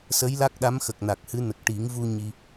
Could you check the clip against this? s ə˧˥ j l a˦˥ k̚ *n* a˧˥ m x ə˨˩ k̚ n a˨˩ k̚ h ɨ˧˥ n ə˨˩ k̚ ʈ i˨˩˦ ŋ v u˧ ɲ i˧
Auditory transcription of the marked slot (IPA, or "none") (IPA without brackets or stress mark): ɗ